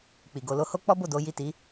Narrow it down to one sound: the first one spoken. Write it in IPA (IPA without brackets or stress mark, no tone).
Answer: k͡p